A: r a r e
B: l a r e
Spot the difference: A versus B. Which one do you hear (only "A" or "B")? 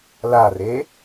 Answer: B